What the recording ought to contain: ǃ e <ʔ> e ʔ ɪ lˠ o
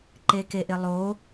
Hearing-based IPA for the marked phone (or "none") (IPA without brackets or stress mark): k